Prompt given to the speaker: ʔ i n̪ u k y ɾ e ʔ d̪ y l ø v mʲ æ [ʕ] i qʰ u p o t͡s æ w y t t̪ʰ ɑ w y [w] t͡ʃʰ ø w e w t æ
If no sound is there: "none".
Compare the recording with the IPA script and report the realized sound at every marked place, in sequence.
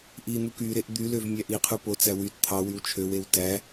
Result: ʔ, w

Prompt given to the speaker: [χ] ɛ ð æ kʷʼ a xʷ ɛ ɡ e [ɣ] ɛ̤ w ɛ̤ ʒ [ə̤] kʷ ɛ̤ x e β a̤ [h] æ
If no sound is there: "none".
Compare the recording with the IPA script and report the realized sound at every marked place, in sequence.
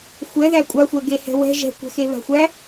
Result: xʷ, h, ɛ̤, xʷ

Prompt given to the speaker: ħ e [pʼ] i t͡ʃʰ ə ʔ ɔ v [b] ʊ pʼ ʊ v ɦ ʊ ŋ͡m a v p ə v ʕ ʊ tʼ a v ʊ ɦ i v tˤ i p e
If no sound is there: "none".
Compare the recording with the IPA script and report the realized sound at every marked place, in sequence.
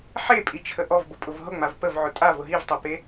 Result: pʼ, b

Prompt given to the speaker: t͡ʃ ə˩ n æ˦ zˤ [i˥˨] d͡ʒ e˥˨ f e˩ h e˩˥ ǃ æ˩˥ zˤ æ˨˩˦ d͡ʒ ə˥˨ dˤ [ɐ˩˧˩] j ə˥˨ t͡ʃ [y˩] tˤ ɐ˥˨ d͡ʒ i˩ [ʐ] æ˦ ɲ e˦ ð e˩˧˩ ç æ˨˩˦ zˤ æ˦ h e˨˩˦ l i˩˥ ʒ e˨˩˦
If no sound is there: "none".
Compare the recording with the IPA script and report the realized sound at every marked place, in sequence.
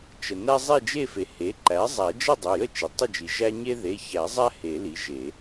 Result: e˥˨, ɐ˩˧˩, i˩, ʒ

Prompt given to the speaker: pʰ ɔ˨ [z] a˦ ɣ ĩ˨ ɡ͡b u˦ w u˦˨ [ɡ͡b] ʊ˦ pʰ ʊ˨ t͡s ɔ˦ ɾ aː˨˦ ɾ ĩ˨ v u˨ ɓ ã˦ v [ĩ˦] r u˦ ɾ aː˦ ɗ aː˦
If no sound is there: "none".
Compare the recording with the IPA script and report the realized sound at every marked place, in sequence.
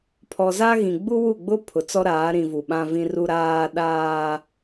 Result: z, ɡ͡b, ĩ˦

